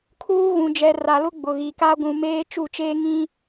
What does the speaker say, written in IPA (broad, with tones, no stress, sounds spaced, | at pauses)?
kʰ uː˦ ɣ ũ˨ d͡ʒ ɛ˨ r a˨ l ʊ˦ ɡ͡b ʊ˨ ɣ i˨ k a˦ ɡʷ ũ˨ m eː˦ t͡ʃ u˦˨ t͡ʃ eː˦ ŋ ĩ˦